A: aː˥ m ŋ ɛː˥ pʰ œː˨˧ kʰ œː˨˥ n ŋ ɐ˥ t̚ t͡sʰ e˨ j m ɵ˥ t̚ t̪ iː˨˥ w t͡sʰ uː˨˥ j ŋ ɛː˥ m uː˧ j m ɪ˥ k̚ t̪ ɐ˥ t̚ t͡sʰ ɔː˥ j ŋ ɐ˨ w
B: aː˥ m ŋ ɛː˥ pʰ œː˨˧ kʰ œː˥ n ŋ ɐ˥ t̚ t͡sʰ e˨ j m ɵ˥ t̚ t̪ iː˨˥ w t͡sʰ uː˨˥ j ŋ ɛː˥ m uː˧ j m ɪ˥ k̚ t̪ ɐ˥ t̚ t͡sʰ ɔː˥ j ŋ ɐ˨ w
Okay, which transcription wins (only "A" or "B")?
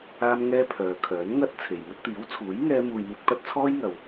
A